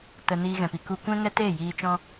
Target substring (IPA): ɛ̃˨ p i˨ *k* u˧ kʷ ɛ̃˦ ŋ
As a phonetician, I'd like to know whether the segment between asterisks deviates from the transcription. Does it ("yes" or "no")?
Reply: no